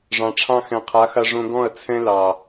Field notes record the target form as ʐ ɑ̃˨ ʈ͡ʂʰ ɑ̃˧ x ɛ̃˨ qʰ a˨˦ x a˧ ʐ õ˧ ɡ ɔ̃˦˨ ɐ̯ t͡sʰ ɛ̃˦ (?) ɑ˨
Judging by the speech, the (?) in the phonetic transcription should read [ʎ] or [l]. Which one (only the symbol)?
l